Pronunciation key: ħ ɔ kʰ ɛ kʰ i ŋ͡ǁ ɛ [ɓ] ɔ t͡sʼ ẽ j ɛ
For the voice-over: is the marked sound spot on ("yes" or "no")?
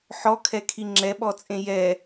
yes